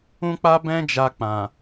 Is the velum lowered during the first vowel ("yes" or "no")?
yes